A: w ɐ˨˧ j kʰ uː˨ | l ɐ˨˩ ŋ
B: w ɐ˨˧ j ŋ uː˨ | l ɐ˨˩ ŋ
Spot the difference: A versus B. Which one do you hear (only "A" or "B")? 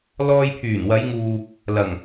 B